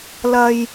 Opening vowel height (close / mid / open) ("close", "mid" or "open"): open